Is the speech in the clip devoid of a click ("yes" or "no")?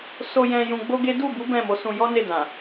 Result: yes